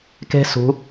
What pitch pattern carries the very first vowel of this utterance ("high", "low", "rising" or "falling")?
high